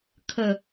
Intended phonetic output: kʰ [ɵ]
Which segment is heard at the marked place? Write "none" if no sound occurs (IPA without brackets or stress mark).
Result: ə